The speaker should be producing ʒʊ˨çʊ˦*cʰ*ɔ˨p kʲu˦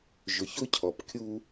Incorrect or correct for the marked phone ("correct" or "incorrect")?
correct